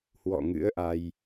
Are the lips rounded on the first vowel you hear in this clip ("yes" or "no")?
yes